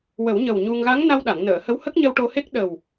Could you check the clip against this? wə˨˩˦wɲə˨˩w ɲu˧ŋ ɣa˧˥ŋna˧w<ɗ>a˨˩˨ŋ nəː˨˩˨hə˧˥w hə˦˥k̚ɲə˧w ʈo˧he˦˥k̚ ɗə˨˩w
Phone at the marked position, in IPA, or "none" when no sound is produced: ɗ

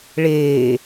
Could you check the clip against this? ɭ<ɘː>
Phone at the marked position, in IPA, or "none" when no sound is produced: eː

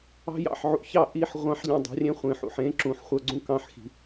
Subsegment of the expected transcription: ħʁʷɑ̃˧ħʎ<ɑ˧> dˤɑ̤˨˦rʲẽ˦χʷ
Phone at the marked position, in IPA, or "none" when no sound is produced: ɑ̃˧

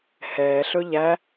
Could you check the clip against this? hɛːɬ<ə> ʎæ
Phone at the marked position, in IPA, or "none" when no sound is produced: ɵ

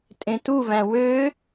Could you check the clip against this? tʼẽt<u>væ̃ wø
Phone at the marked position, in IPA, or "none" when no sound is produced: u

